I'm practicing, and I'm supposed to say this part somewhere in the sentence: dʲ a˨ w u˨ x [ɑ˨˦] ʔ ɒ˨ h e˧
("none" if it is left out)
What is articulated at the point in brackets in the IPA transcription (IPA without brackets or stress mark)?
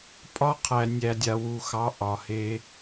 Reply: ɑ˨˦